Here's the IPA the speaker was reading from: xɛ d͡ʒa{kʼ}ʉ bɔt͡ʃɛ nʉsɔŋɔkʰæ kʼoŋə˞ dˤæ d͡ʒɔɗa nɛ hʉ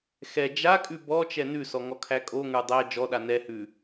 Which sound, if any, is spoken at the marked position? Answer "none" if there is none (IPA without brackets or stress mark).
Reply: kʼ